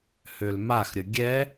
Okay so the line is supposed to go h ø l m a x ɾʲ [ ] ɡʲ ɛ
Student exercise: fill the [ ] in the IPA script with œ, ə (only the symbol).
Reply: ə